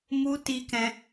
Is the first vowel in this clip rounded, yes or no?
yes